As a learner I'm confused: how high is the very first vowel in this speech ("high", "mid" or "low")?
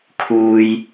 high